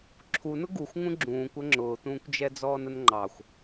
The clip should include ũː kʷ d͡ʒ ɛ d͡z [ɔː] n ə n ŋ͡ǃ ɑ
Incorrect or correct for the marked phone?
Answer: correct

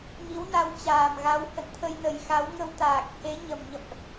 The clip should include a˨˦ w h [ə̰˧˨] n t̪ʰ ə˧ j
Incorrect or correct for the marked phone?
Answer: correct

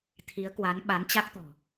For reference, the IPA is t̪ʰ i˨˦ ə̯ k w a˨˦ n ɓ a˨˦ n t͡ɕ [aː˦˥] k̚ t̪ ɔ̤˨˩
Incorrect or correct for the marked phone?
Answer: incorrect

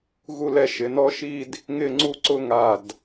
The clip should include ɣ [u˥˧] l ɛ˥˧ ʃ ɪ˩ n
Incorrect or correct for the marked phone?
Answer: correct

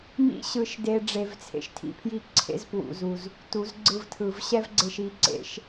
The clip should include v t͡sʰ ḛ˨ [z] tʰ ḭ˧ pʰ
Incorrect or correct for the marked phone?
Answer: incorrect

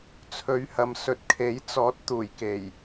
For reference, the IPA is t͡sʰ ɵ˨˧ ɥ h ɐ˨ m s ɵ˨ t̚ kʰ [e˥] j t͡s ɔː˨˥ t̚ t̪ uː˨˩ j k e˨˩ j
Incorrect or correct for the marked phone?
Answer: incorrect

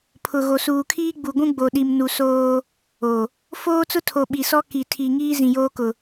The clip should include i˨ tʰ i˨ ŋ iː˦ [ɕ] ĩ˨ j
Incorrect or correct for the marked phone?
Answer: incorrect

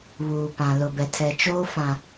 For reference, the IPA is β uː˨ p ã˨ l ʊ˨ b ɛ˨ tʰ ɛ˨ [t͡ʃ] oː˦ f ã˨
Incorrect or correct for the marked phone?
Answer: correct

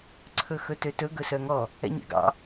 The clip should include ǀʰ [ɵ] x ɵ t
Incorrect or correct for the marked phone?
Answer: correct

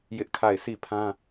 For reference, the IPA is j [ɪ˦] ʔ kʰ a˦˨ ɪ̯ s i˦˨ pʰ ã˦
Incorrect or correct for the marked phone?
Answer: correct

